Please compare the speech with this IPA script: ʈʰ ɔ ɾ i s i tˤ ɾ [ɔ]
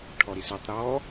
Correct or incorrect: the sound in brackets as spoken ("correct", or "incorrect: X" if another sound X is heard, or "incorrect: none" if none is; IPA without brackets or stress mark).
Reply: correct